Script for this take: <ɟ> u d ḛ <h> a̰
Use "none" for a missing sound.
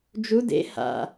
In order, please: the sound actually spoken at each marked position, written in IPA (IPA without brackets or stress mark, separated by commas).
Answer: d͡ʒ, h